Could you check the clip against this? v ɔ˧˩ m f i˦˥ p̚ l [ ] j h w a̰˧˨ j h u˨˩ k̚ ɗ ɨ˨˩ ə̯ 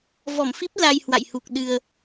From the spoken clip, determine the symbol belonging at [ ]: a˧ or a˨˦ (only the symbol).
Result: a˧